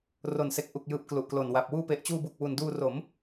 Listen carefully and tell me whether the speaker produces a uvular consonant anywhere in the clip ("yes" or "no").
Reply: no